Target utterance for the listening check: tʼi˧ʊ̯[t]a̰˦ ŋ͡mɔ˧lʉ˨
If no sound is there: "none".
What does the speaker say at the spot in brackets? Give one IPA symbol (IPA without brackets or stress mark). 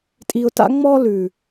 t